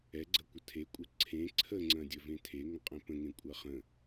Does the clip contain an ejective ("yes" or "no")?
yes